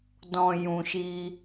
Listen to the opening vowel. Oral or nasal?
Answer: nasal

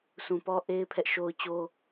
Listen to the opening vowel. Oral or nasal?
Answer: nasal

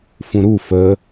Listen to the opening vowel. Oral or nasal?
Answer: nasal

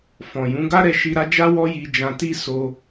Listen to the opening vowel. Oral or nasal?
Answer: nasal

